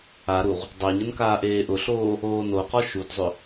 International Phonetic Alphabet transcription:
a ɾ u ʁ | dˤ o ɲ ə n k aː ʔ eː ʔ ʊ ɬ oː | oː n o q ɔ ʃ u d zˤ ʏ

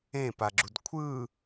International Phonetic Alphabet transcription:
ẽ p a ɡ͡ǁ u d kʷʰ ɯ

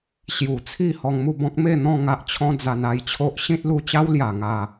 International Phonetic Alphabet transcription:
ɕ j u˨˩ t͡sʰ i˥˧ h ɔ˧ ŋ m u˥˧ b ɔ̃˦ k̚ m e˥˧ n̪ ɔ̃˥˧ ŋ a˦ ʔ t͡ɕʰ ɔ̃˦ d͡z a˧ n a˧ j t͡ɕʰ o˦ ʔ ɕ ĩ˦ t̚ l u˧ t͡ɕ a˦ w l j a˨˩ ŋ a˨˩

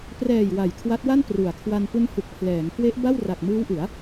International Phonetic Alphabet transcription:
p r ɛː˨˩ j w a˨˩ j kʰ w a˦˥ t̚ w a˥˩ n p r u˩˦ a̯ kʰ w a˧ n p u˦˥ n h u˨˩ k̚ pʰ l ɛː˩˦ ŋ k w e˦˥ ʔ b a˥˩ w r a˨˩ k̚ m ɯː˦˥ w ʔ ɯ˩˦ a̯

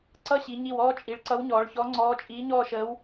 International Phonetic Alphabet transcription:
ǀ ʌ˥˧ ɕ i˩˧ ɲ i˧˩ w ɔː˥˧ t͡ʃʼ i˩˧ ɭ ǀ ʌ˧˥ w ɲ ɔː˩˧ ɭ ç ɔ˧˥ ŋ͡ǀ ɔː˧˥ t͡ʃʼ iː˧˥ ɲ ɔː˥˧ ʃ əː˧˥ w

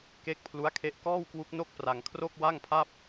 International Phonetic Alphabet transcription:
k e˦˥ k̚ pʰ l u˦˥ a̯ kʰ e˦˥ ʔ k ɔː˥˩ w k w u˦˥ k̚ n o˥˩ k̚ p r a˧ ŋ kʰ r o˥˩ k̚ w a˥˩ ŋ pʰ a˥˩ p̚

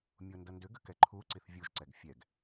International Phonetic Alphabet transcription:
mʲ o n d ʌ n d ʏ ɡ ʏ k ɛ ǃʰ u ǀ i θ vʲ u ʒ ǀ ɛ ɡ fʲ ɛ ɡ

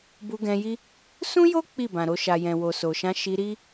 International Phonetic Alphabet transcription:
b u˧ ɡ ɛ̃˧ j i˦ | s ũ˦ j o˦ k͡p i˦˨ b ã˨ ɾ o˧ ʃ a˨ j ɛ̃˨ w o˨ s o˨ ʃ ã˧ ʃ i˧ ɾ i˦

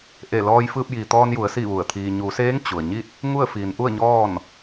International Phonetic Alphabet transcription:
ʔ e˧˩ l ɔː˧ j f ɯː˧ p̚ j iː˩ t̪ ɔː˧ n j u˩˧ ə̯ s i˥˨ ʋ u˧˩ ə̯ t̪ʰ iː˧ ɲ u˩˧ s eː˧˥ ŋ t͡ɕ u˩ ə̯ ɲ i˥˨ t̚ | ŋ u˥˨ ə̯ f iː˩˧ n ʔ u˥˨ ə̯ ɲ ɔː˥˨ n

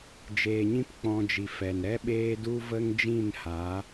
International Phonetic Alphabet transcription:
d͡ʒ eː˧ ɲ ĩ˦ p k͡p ɔ̃˧ d͡ʒ i˨ f ɛ˨ n ɾ ɛ˦ ɓ eː˦ d u˦ v ə˦ ŋ d͡ʒ ĩ˦˨ n h a˨˦

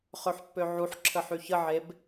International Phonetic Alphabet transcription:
χ ø ħ pː ø ʕ u ħ ǁʰ ə ħ y ç ə ʕ e b

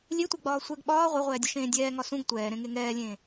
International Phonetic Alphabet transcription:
lʲ e tʷ ɛ ɡ͡b ɒː sʷ ɛ ɡ ɓ ɒː ʁʷ e ʁʷ ɛː dʲ ɒ ʃ ẽː dʲ ɛː ŋ ɒ s ũ ɡ tʷ ɛː ɾ ẽ ŋ e ŋ ɛː lʲ ẽː

